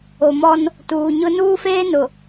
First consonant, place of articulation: labial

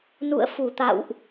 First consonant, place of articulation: alveolar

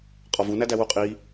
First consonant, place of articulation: uvular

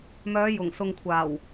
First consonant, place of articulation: labial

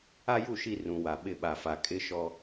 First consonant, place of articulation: palatal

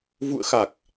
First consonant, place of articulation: labial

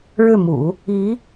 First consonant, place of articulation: retroflex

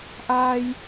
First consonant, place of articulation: glottal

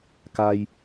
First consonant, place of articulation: velar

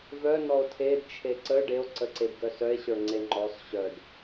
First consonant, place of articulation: labial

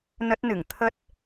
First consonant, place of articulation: alveolar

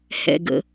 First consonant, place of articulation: glottal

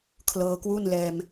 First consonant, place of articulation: velar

